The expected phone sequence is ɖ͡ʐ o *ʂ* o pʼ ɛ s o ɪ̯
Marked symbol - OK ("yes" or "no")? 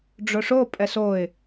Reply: yes